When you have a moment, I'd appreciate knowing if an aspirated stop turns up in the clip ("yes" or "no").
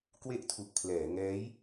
yes